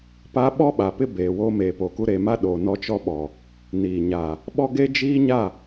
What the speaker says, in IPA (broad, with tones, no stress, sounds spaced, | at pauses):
p a˦ ɓ ɔ˦ ɓ a˨ p ɪ˦ b eː˨ w oː˦ m eː˨ p o˨ k u˦ ɾ e˨ m a˦ ɗ o˨ n ɔ˦ t͡ʃ ɔ˦ ɓ ɔ˨ | n iː˨ ɲ a˨ | ɓ ɔ˦ ɡ e˦ d͡ʒ iː˦ ɲ a˦˨